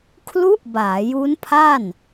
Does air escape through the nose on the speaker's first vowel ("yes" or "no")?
no